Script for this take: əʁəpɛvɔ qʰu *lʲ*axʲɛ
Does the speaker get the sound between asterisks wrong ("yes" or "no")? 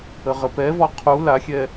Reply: yes